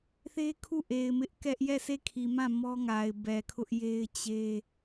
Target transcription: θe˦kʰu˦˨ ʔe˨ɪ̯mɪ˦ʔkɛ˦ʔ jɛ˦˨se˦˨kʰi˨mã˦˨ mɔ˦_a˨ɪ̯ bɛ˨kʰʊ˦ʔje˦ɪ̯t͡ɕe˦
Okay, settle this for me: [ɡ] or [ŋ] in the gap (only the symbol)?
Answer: ŋ